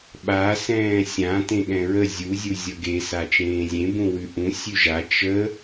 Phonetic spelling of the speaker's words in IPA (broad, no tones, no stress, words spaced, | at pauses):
ɓa sɛ̃ːsʲã tẽɠɛ̃ɹə zʲu zʲuzʲʌɡe sat͡ʃẽːzʲẽ bũwʉʔũ sʲʉʒa t͡ʃə